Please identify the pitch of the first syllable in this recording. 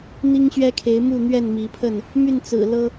high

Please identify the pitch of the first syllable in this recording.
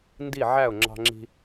falling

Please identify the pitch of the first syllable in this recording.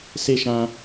high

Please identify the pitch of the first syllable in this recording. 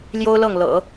high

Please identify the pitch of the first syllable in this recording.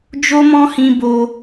high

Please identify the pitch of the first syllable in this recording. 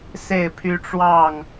falling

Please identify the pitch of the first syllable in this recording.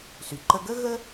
low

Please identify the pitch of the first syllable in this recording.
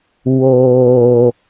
low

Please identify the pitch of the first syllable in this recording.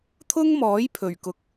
high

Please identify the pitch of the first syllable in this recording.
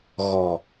low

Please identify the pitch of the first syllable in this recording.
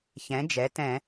rising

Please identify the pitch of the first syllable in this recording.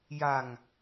low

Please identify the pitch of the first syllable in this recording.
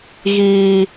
high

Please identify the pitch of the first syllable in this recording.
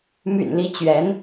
low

